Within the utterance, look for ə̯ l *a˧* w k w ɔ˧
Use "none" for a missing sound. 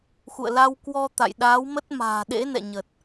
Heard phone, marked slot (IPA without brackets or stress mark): a˧